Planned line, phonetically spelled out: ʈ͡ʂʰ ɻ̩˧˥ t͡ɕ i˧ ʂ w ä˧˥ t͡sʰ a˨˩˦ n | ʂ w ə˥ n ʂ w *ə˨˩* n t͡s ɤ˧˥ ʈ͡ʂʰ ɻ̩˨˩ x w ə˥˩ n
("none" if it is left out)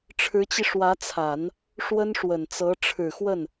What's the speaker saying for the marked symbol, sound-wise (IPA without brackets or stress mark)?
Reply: ə˨˩